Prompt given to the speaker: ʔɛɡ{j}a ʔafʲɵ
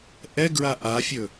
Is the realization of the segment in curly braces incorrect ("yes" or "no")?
yes